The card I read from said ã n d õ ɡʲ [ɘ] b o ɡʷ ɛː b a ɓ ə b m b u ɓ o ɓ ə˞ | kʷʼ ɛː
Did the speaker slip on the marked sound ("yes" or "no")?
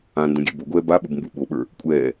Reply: yes